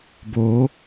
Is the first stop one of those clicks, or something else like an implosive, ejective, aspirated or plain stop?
plain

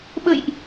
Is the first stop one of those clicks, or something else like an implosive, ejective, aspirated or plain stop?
implosive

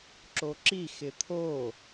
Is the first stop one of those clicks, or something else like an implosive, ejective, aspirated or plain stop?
click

